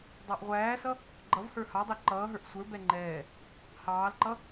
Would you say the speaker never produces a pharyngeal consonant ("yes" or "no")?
yes